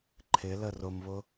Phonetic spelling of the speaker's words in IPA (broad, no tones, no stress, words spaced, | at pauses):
ǃʰɪlə rʊmβʊ